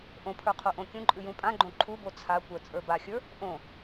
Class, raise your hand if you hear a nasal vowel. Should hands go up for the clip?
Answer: yes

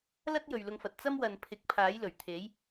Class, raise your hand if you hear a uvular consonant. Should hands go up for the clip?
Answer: no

